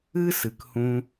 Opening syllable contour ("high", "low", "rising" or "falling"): high